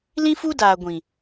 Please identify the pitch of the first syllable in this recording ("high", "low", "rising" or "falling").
high